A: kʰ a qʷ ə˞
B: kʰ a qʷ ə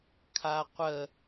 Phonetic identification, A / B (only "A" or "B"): B